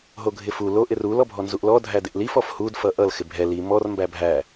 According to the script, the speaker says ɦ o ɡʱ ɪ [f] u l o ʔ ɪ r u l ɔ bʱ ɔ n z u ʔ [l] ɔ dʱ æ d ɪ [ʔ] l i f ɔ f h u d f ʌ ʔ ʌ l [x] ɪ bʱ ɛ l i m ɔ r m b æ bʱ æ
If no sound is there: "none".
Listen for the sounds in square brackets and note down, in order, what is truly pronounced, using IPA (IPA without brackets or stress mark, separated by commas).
f, l, ʔ, x